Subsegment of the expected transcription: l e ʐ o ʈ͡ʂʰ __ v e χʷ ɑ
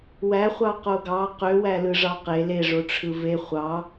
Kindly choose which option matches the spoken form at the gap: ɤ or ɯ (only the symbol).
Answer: ɯ